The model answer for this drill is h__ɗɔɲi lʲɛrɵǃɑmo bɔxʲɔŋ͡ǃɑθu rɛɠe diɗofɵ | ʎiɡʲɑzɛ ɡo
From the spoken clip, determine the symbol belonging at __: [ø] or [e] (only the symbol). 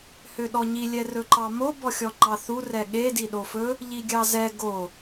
ø